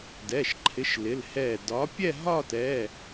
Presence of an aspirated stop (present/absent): present